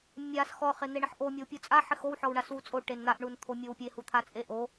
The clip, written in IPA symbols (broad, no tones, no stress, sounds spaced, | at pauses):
mʲ a s x ɔ χ e n̪ e ɳ ɪ ħ ʔ o mʲ o w pʲ u t͡sʼ a ħ ɪ x o w ħ ɔ w ɳ a s w u t͡sʼ o ʈ e n n̪ a ʔ ɳ u n t̪ʰ o mʲ o w pʲ e h u t̪ʰ a t͡sʼ e ʔ o